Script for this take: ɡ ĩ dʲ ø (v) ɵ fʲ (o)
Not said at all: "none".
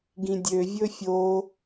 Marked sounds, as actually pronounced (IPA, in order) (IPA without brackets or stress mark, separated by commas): vʲ, o